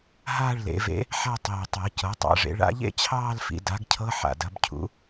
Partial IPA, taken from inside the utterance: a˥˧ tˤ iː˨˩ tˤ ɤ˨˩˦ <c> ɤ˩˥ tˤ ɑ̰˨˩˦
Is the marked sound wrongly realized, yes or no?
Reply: no